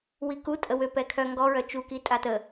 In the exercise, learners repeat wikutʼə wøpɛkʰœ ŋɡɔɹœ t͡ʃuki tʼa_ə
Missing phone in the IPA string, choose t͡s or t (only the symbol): t